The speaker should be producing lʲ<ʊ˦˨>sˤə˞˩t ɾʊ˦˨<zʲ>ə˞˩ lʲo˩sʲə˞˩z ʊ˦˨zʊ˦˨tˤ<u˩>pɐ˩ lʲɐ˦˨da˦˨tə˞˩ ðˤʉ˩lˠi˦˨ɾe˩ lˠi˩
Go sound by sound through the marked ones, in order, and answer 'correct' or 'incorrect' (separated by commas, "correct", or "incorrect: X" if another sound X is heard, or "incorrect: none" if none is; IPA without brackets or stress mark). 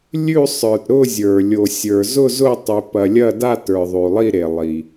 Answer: incorrect: ʉ˦˨, correct, incorrect: ʉ˩